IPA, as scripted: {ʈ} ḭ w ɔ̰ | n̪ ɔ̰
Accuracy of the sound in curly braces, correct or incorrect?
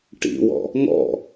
correct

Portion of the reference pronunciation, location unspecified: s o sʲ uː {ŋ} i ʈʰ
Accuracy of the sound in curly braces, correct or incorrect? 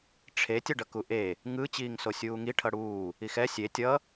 correct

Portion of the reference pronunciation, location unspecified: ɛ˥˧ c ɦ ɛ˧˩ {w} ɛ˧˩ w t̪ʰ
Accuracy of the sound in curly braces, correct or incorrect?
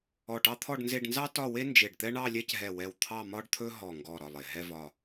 correct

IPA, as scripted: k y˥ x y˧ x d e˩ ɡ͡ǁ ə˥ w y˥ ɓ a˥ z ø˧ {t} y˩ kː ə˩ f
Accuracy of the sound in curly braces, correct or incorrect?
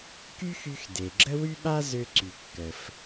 incorrect: ǀ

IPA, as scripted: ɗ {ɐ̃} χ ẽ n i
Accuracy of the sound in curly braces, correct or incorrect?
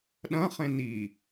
correct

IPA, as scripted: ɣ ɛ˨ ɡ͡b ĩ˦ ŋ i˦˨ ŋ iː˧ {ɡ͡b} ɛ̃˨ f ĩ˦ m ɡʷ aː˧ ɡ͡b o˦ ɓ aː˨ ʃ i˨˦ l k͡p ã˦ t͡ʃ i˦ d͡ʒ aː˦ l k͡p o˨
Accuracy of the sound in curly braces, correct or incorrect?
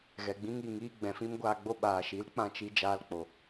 correct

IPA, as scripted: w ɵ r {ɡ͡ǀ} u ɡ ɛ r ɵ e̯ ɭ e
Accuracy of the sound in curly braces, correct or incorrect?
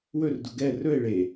incorrect: d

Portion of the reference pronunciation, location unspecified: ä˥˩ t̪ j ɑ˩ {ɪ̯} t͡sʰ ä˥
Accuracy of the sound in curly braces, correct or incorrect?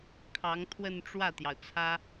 incorrect: ʊ̯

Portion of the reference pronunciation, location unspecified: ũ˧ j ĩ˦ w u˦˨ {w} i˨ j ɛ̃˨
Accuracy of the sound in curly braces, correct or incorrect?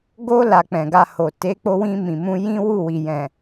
correct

